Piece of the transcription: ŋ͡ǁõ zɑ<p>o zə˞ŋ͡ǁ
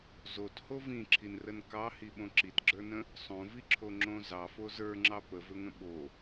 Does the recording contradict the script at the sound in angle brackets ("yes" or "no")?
yes